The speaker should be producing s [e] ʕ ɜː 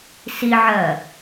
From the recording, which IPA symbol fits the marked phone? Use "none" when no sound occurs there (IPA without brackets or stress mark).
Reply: i